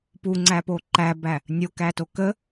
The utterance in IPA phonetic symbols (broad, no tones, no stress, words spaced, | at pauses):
puŋ͡ǀæpo ǃæbæ | nʲokæto kə